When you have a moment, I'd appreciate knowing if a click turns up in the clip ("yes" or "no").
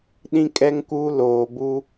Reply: no